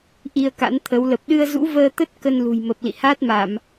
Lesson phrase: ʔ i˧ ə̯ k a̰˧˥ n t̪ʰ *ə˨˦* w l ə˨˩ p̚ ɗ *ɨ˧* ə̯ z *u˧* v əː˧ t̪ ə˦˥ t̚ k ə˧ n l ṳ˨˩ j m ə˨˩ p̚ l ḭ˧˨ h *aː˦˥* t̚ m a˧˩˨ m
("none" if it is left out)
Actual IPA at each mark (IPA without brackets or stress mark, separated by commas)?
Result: ə˨˦, ɨ˧, ṵ˧˥, aː˦˥